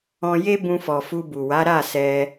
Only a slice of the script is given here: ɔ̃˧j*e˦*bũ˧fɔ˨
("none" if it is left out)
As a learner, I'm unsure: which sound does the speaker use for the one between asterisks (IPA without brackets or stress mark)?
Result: e˦